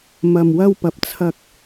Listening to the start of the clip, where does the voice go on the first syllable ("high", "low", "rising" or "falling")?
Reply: low